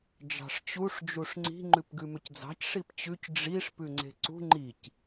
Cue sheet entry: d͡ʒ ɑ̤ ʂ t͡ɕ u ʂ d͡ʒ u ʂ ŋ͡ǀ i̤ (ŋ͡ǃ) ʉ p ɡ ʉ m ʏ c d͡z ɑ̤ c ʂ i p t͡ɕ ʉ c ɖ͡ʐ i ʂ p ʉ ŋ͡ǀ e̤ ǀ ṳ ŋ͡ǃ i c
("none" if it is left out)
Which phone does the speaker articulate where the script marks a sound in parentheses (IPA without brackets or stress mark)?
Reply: ŋ͡ǃ